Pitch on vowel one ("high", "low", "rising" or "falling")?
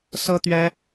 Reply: high